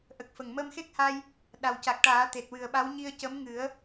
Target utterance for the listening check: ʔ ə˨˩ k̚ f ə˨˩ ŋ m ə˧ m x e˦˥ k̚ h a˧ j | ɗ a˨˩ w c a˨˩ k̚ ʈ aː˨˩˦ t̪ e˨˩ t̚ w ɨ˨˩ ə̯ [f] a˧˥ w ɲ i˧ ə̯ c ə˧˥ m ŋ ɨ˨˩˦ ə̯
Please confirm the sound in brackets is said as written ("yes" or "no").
no